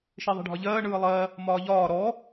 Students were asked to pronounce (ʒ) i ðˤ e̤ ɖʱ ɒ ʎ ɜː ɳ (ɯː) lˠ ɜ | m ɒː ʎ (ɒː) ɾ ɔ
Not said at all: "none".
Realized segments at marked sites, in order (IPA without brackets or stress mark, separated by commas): ʃ, ɯː, ɒː